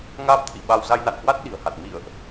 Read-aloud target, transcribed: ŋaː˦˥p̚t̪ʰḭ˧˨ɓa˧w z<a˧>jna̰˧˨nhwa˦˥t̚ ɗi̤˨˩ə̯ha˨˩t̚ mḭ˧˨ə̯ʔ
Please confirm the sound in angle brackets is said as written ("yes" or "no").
yes